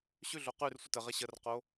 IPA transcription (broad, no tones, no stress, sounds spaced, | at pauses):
ɕ ʉ ɮ o q ʉ r sʷ ə t ə ʁ e ɕ ə r q o